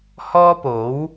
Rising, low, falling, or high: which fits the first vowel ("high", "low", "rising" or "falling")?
high